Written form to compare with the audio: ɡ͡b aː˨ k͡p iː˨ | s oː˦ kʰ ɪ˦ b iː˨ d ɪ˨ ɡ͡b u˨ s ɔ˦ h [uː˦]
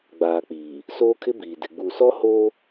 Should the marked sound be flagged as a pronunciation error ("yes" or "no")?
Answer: yes